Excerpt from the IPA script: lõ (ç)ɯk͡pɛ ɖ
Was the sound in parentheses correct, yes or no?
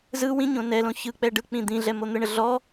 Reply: yes